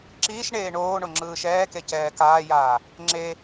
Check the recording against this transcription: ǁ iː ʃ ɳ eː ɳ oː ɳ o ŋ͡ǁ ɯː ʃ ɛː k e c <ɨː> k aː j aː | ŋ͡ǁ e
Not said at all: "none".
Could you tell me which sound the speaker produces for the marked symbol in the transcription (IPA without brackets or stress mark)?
ɛː